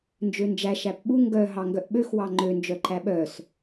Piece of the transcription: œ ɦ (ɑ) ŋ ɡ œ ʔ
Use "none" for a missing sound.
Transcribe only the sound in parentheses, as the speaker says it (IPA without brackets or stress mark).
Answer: ɑ